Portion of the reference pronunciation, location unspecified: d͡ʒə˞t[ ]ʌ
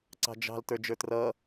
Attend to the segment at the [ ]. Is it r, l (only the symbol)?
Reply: r